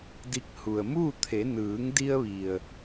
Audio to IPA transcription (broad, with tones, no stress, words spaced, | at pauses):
di˧k̚hu˩ə̯ muː˥˨t̪ʰe˩˧ nɯː˩˧ŋdi˧ə̯ʋi˩ə̯